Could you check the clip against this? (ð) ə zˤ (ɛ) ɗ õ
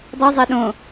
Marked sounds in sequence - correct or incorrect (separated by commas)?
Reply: incorrect, correct